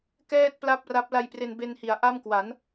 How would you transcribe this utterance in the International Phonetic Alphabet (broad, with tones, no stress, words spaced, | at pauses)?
kɛː˥˩t̚pla˥˩p̚ra˦˥p̚ la˧jpre˧nbe˧nhi˩˦a̯ ʔa˥˩mkwa˩˦n